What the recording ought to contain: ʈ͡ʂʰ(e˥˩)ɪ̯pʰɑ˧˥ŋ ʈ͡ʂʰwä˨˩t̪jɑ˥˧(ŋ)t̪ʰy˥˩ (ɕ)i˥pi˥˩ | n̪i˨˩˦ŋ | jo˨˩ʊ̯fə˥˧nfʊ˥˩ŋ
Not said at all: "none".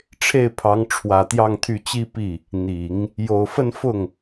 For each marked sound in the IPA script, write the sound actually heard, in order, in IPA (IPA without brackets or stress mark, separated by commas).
e˥˩, ŋ, t͡ɕ